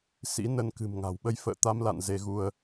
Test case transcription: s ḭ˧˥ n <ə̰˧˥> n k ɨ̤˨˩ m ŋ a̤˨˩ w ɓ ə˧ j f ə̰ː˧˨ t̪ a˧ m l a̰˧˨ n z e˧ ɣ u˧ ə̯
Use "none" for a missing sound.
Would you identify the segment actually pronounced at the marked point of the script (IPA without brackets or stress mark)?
ə˧